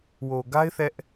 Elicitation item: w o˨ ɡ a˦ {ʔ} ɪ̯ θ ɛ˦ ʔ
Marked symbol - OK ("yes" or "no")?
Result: no